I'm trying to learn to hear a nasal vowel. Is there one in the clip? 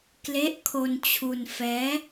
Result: no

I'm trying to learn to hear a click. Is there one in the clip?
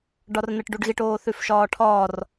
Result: no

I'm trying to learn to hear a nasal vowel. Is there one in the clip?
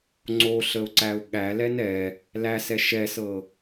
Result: no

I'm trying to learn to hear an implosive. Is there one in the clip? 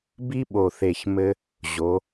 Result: yes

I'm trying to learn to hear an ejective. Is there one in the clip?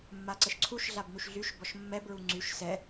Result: no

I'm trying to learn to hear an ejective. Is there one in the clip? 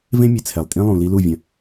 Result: yes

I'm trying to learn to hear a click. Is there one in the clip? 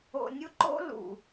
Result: yes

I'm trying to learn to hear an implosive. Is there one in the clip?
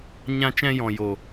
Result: no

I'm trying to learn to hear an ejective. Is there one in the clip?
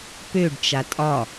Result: yes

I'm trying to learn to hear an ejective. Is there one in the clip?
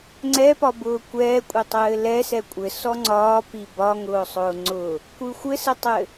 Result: yes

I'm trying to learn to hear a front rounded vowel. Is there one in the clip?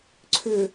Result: yes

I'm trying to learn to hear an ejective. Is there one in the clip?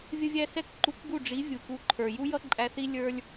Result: yes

